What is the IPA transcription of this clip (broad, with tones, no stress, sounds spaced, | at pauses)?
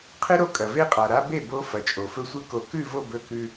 qʰ ɨ˦ ɾ o˦ kʼ ɐ˨ v e˦ qʼ a˨ ɾ a˦ b e˦˨ b o˦ f ɐ˨ t͡ʃʼ o˨ f ɵ˧ sʷ ɨ˧ k o˨ k ʉ˦˨ v o˦˨ b ɵ˧ k ʉ˧